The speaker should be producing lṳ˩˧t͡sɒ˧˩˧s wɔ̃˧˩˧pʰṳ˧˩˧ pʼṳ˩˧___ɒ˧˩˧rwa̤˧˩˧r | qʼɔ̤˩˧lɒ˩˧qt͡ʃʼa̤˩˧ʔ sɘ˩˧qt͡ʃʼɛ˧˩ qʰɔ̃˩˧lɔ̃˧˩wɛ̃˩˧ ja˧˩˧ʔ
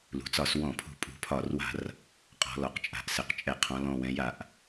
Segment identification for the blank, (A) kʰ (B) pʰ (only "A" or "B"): B